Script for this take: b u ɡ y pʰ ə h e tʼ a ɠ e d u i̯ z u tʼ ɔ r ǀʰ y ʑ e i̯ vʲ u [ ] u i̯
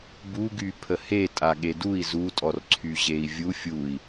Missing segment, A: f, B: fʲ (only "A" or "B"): B